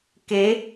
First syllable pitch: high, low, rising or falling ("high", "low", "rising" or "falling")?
rising